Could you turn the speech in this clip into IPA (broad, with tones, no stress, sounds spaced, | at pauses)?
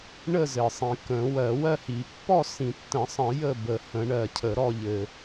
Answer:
ɳ ə˥˨ z ɘ˨ sˤ ĩ˨ k ə̃˨˩˦ w ɜ˨˩˦ w ɜ˥˨ h i˨˩˦ pː ɔ˥˨ s ĩ˨˩˦ tː ə̃˨˩˦ sˤ ə̃˨˩˦ j ə˥˨ b ə˨˩˦ h ə̃˨˩˦ ɳ ɜ˨ cʰ ə˨˩˦ ɾ ɔ˥˨ ʎ ɘ˨